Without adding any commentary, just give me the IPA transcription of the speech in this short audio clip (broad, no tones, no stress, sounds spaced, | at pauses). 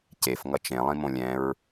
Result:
c e f ŋ ʌ t͡ʃ ẽ lˠ ĩ m õ lʲ ɛ̃ ɹ